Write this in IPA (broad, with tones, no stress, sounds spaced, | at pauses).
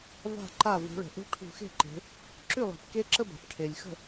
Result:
v a̤˥˩ ǃ a˥˩ v ṳ˩˧ ɭ ə̤˩ ʔ ṳ˦˥ ʈʰ ṳ˧˩˧ x e̤˥˩ ǃ e̤˩˧ | ǁ ʉ˥˩ lˠ e̤˩ p k e˦˥ ǁ ə˥˧ b a̤˩ p ʈʰ e˩ lʲ x ə̤˥˩